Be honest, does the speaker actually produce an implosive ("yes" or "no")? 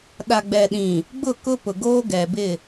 yes